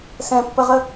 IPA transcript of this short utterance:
s ɛ̃ pː ə ʁ ə

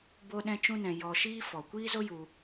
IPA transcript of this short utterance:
b o˦ ɗ ɛ̃˦ t͡ʃ ũ˦ n ɛ̃˧ j ɔ˧ ʃ iː˦ f ɔ˨ kʷ iː˦ z o˦ j u˧

